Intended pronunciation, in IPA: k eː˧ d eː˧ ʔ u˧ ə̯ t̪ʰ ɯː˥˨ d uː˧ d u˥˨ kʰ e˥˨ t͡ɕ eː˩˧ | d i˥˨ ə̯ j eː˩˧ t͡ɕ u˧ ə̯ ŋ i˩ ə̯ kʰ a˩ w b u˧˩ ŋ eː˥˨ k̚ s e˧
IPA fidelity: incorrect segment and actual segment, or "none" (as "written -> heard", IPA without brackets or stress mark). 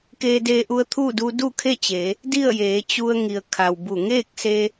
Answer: ɯː˥˨ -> uː˥˨